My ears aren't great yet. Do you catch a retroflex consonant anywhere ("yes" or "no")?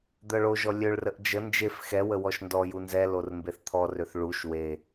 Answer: yes